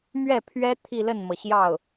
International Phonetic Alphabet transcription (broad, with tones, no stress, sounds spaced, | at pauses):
m ɥ ɛ˥˩ pʰ ɥ ɛ˥ t̪ʰ i˥˧ l ə˥˩ n m ɤ˩ ɕ j ɑ˥˩ ʊ̯